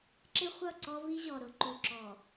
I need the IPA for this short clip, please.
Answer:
ǁ ɪ˦ χʷ ʌ˦˨ ǀ ɔ˦ v i˦ ʑ ɔ˨ ɾ ʊ˨ ǃ u˨ ǁ ɔ˨

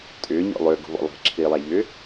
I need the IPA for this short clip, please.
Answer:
tʼ ʏː ɲ ɔ̰ lˠ ʏː ɡ o̤ β ɔ̰ lˠ e̤ ǁʰ iː lˠ a ʎ ʏː

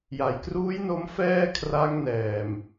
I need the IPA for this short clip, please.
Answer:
j a˨˩ j k r uː˦˥ j n o˧ m f ɛː˥˩ kʰ r a˦˥ ŋ n ɛː˨˩ m

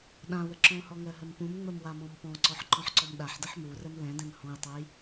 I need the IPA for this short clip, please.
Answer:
ɗ ã w ə ǁ ɔ̃ h ɔ ŋ ɜ ɦ ə m p ũ m ŋ͡m ə m w a m ɔ̃ m p ɔ̃ ǀ ɔ ħ ǃ ɔ̃ ħ ǀ ɔ m ɗ a ħ d ə ħ m u r ə m l ɛ̃ d ɛ̃ m h ɔ̃ j tˤ ɛ j

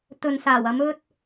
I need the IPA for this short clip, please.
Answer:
t̪ ɵ˨ n s aː˨˩ w ɐ˨˧ m ɵ˧ t̚

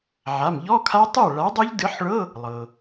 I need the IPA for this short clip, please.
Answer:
ʕ a˩˧˩ m ʎ ɔ˧˥˧ kʰ a˦˥ tˤ ɨ˥˩ ɐ̯ ɭ a˨˥ dˤ u˦˥ ʎ d ɨ˨˥ ħ ɭ ɤ˧˥˧ | lˠ ɤ˩

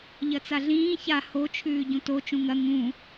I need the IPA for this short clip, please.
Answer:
ʎ ɐ t͡s a ɮ ĩː ç a h o t͡ʃʰ ʉː ɟ ũ t o t͡ʃ ũ ŋ ɐ ŋ ũ

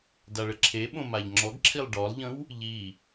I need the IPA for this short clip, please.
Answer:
d a ɭ ə ǁʰ e ɓ õ m a ʎ ŋ͡ǁ ɔ ɡ ǁʰ i lˠ ɖ ɔ lˠ ʎ ə̃ w | ʎ i

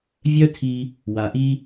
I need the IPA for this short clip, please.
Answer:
vʲ œ˥ tʰ i˧ | w a˩ ʔ i˧

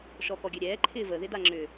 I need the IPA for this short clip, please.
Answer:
ʃ ɔ k ɔ ɡʲ ø ɾʲ ɛː ǃʰ ɪː v ə ð ɪ d a ŋ͡ǁ ʏ

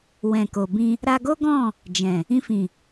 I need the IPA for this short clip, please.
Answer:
w ɛ̃˨ k o˨ b ĩ˧ | ɾ a˧ ɡ o˦ ɡ ɔ̃˦˨ | d͡ʒ ɛ̃˨ | ĩ˧ f ĩ˨

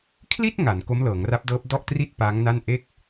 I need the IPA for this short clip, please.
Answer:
kʰ l i˥˩ t̚ ŋ a˩˦ n k o˦˥ m l ɤː˩˦ ŋ r a˦˥ p̚ d ɤː˦˥ p̚ d ɔ˥˩ ʔ t r i˥˩ t̚ p aː˦˥ ŋ n a˥˩ n ʔ e˥˩ k̚

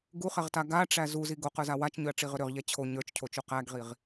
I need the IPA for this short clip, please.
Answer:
ɡ u χ ɛ ʁ t a ɡ a ʈ͡ʂ æ z u z i ɡ o q ə˞ z a w a t͡ʃ ɲ ʏ ɐ̯ ʈ͡ʂ i ʁ ʏ ɾ ʏ ʁ ʎ ɛ t͡ɕʰ o ɲ ə˞ t͡ʃ cʰ o t͡ʃ u q æ ɡ ʁ i ʁ

